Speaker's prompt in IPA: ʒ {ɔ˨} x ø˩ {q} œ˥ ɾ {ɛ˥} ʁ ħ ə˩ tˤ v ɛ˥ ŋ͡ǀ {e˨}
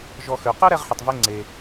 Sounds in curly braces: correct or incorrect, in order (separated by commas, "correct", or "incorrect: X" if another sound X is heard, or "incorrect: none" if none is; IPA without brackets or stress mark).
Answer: correct, correct, correct, correct